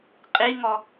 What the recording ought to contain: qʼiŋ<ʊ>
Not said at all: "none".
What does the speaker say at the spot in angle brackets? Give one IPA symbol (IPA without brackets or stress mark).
ɔ